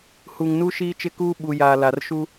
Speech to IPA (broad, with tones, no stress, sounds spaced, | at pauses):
h u˨ ŋ n u˦ ʃ iː˦ t͡ʃ ɪ˦ k uː˦ ɓ u˨ j aː˨ l a˨ r ʃ u˦